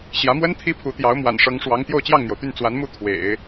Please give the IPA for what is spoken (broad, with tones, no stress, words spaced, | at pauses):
ɕjä˧˥mwə˥n t̪ʰi˥pʰu˧˥t̪jɑ˧˥ʊ̯ mwa̰˨˩nʂɤ˧˥ŋʂwɑ˧˥ŋ t̪jo˥˧ʊ̯t͡ɕjɑ˥˩ŋn̪jo˩ʊ̯t̪y˥˩n t͡swa˧˥nmu˥˩ t̪ʰwḛ˨˩˦ɪ̯